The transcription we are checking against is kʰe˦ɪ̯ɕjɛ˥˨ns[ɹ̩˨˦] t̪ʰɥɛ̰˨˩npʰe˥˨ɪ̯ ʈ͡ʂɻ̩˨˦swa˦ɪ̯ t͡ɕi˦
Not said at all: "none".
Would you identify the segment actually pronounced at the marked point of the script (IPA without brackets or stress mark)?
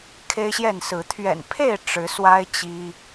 ɹ̩˨˦